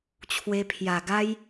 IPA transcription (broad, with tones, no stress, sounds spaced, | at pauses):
t͡ɕʰ w e˧ pʰ j a˨˩ ɡ a˦ j